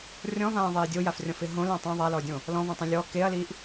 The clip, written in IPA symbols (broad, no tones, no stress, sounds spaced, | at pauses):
rʲ ɔ̃ v ãː ðˤ eː dʲ o j a f rʲ ɔ̃ f ɪ ɦ õ l ã tˤ ã ðˤ a l ɔ dʲ õ | l ɔ̃ v ɔ̃ tˤ õ lʲ ɔ k e ɐ̯ l i ʔ